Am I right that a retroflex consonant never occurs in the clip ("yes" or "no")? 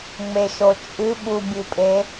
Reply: yes